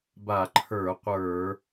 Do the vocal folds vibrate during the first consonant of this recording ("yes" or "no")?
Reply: yes